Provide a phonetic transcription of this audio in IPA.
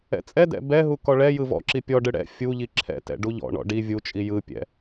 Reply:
ɛ̰ t͡sʼ ɛ d ɛ̰ b ɛ ɦ u k ɔ ɭ ɛ j ɯ v ɔ̰ ǁ i pʲ ɔ ɖ ɯ ɽ ɛ̰ fʲ u ʎ i ǁʰ ɛ̰ t ɛ̰ ɖ u ʎ ɔ̰ ɳ ɔ̰ ɖ i vʲ u t͡ʃʼ i j ɯ pʲ ɛ̰

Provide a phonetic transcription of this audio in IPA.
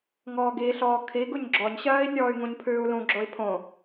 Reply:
ŋ ɔː ɡ i ɬ ɔː kʰ i ɡ u ɲ ɡ͡ǁ ɔ ɲ ɕ ɜː i̯ nʲ ɔː y̯ ŋ ũ ɲ pʰ ʉː u̯ l ũ ɡ͡ǁ o i̯ pʰ õ

